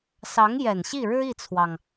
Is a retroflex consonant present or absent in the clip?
present